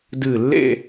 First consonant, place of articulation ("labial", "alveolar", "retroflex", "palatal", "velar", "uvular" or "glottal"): alveolar